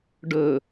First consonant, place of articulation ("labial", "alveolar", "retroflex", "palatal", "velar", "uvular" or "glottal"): retroflex